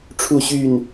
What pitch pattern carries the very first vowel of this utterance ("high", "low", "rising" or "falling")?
falling